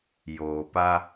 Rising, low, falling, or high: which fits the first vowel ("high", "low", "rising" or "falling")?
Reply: low